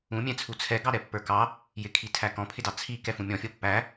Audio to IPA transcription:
ũmʲɛ̃t͡sʰu t͡sʰɛɡɑɾɛpːə˞ kɑ | jɪkʰitʰæ kɔ̃pʰɪdɑ t͡sʰikɛfũ mʲɔ̃fʲɔ pːæ

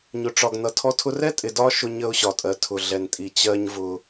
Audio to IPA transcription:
ɲʊ˨ʈ͡ʂɒ˨ɡ nʌ˨tʰɔ˦tʰʊ˦ rɛ˦tʼɪ˨ dɒ˦ ʃʊ˦ɲə˦ʊ̯ɕɒ˨tʼɜ˨ tʰʊ˨ɮɛ˨ntʼi˨ t͡ɕɜ˦ɲvʊ˦

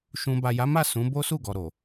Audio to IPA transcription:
ʃũ˧ ba˨ja˨˦ma˦˨ sũ˨˦ bo˦su˦˨ɡɔ˨ ɾo˨

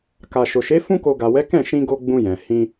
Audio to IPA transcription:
ka˨ʃo˨ʃe˨˦ fũ˧ko˨ ɡa˨wɛ˨˦ kɛ̃˦˨ʃĩ˧ɡo˧ ɡ͡bũ˧jɛ̃˨ hĩ˧

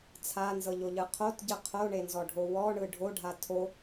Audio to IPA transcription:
t͡sʰanzɤʎoʎɯ qʰotɟɯ qʰoɳenzɔɖʱo wɔɳɯ ɖʱoɖʱa tʰo

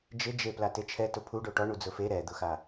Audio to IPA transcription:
d͡ʒɪd͡ʒe platet͡ʃʰɛtʊ pʰu ɖoʈɔ ɳud͡zʊfe ɾɛd̪ʊxa

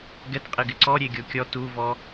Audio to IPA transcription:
ɡɛtqʼɪɡɪ ǀɔɾʲeɡʲo kʲɔ tuvɔ

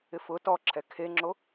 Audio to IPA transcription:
ɪfʊ tɔǁʰɛ kʰeŋ͡ǁo

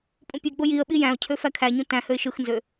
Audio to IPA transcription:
pʼũpʲeɡ͡bo jiə̯ɓi jæ̃ʊ̯cʰø fækʰæɲũ tæ̃høɪ̯ ʃɯxnzø

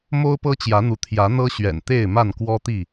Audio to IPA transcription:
mo˦ʊ̯pɤ˦t͡ɕjä˨˦n̪u˨˦ t̪ʰjä˨˦n̪ɤ˦ɕɥɛ̰˨˩n t̪e˥˨ɪ̯ma˥˨nkwɔ˦t̪i˥˨

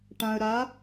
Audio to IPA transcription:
ʈã˧ə̯ɾa˧˥

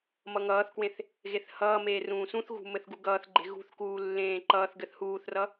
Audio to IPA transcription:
mʌŋʌːθkwẽθ | ɣeθhʌːmeː rũːsũθɣṳ mɘθɡuɡʌːθɡ͡ǃe̤ ɣṳθkuː lːẽːǃʌːθɡɘθ huːθrʌ

